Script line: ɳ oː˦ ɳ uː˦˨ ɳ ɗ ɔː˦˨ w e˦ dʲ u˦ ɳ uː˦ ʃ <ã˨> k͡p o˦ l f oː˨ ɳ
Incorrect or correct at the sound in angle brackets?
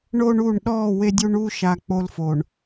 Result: incorrect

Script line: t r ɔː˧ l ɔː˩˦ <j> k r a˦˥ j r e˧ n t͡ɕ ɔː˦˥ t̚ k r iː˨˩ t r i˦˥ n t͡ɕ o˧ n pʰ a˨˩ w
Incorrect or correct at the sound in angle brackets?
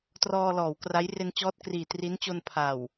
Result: incorrect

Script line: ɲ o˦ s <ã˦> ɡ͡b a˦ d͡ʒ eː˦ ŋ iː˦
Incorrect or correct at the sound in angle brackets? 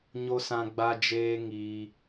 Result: correct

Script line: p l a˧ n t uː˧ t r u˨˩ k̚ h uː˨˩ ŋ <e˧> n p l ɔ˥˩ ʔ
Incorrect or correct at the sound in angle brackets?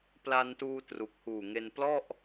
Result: correct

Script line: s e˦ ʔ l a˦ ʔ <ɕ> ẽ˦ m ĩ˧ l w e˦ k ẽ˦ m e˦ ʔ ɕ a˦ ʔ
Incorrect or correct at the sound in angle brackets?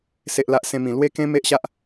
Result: incorrect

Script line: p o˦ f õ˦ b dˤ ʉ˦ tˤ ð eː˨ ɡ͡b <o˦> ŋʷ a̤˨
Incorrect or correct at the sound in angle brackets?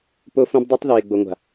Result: incorrect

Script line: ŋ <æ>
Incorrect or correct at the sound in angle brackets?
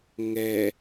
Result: incorrect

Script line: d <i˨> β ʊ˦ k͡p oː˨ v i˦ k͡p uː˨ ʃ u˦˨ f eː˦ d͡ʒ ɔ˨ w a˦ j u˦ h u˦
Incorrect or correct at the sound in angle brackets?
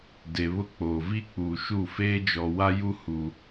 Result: incorrect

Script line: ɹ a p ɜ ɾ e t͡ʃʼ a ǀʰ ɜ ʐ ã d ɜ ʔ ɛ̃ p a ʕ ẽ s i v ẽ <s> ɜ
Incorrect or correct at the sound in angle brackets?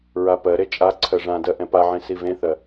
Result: incorrect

